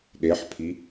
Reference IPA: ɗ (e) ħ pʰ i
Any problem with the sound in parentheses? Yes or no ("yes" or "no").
no